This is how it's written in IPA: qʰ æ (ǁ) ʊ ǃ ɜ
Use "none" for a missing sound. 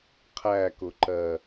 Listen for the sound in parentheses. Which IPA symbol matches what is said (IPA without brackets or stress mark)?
k